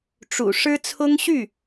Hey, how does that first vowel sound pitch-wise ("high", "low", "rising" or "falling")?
low